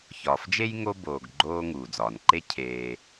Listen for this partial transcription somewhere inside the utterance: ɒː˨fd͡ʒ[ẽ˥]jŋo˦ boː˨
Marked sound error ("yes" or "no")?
yes